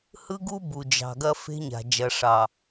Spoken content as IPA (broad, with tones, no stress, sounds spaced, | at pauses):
h ɯ˦ ɡ u˦ b u˨ d͡ʒ ɑ̤˨ ɡ ɐ˦ f e̤˦ ɲ a̤˨ d͡ʒ ɐ˨ ʂ ɑ˨